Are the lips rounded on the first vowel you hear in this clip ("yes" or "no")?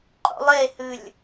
yes